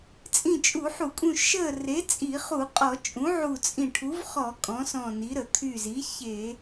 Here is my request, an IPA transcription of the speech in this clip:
t͡sʼĩ˧˩t͡ʃʼu˧˩˧ħu˧˩˧kʼũ˧˩ ʃə˧˩ re˩˥t͡sʼi˧˩˧χu˧˩˧qʼɔ˧˩˧ t͡ʃʼũ˩˥ʕu˧˩ t͡sʼĩ˧˩ ʈʰu˩˥vχɔ˧˩˧ kʼɔ̃˩˥sɔ̃˧˩ni˩˥ ɾə˧˩˧t̪ʰy˧˩zi˩˥ çe˧˩˧

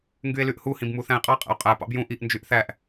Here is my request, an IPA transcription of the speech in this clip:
ŋɡye̯lyʔhu hĩbmuθæ̃e̯qʼɑ qʼæ̰o̯qʼæ pɑ̰bjũ ʔiʔ nd͡ʒyʔθæʔ

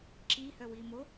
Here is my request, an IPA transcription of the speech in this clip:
ǁihœwi mo

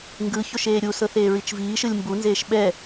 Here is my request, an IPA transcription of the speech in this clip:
ŋɡɯçoʃ eːɾʲusɤθ eːɹit͡ʃviːʃɯlʲ mbunzeːʃ ɓɛ

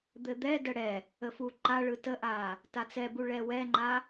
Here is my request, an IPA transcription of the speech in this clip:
d̪ɘd̪ɛdə ɽɛ | əfuǃaɭɯ təʔa | tat͡sɛbu ɭɛwɛŋ͡ǃa

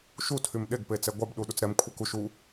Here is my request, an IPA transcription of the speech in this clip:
ʃu tʰymɗeɡ pet͡sɛɡʷab ɗuɗut͡sɾɛm kʷʰɛkuʃ u

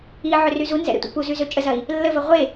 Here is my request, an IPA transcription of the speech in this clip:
iʕʏ ryzunzɛ̰ ɾɛ̰tʷɛ̰puzy zøt͡ʃʼəzɐi̯ | lːəvə ʁʷe

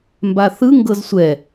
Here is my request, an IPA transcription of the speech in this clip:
mbaθɯ ŋɡɤzsʷɛ

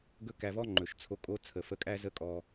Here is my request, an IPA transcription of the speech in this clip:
ɡɵ˦kæ˧vɔ˦ŋ͡ǃɵ˨ʃ t͡sʰo˧kʼo˦ t͡sʰə˨fə˧kʼæ˦ zə˦kʼɔ˧

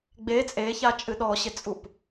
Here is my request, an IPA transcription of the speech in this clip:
ɡ͡be t͡sʼeçat͡ʃʼɨ ɗɔɕɪt͡sʼup

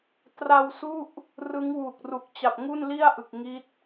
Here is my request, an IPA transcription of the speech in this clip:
tra˧wsu˥˩ʔ | rɯ˦˥ŋwu˨˩k̚ru˨˩k̚ t͡ɕa˨˩p̚ŋu˥˩nli˥˩a̯ʔɯ˨˩k̚ ŋi˦˥t̚

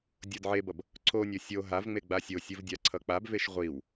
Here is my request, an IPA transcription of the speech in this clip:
dʲodʕebʌb | ǀʰonʲo sʲo ɦavŋ͡me ɡ͡basʲosʲɯv dʲaǀʰʌk͡pabveʃ ʁʷiw

